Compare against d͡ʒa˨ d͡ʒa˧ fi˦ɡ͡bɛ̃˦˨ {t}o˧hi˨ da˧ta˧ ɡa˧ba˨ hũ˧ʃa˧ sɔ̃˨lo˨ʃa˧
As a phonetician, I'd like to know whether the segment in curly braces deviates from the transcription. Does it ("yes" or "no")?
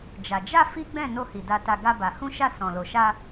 yes